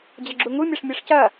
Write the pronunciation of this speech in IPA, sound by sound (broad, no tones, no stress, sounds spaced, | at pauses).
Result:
d͡ʑ ɐ ɡ͡ǁ u ŋ u mʲ ɐ ʂ mʲ ɛ ʂ c ɐ